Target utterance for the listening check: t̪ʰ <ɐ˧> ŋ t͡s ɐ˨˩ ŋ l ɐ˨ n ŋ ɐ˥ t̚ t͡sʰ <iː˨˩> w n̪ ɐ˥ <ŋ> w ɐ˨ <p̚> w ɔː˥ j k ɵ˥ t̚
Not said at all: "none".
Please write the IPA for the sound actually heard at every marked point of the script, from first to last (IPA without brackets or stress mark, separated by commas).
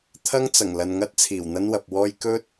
ɐ˥, iː˨˩, n, p̚